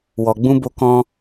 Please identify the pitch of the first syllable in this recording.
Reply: low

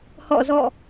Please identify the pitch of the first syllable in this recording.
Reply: falling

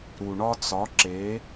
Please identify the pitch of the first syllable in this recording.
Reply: low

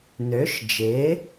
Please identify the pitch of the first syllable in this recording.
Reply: rising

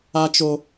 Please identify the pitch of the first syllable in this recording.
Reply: high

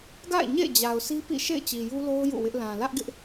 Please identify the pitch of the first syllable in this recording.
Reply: falling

